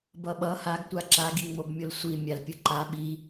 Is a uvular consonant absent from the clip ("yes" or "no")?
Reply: yes